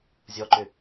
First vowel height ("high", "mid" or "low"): mid